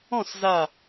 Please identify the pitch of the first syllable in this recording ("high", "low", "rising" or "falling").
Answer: falling